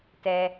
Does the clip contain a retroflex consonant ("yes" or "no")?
no